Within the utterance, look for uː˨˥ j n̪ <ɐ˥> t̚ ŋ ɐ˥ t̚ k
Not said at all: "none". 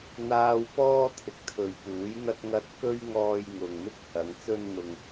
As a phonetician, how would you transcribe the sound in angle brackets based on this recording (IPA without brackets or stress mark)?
ɐ˥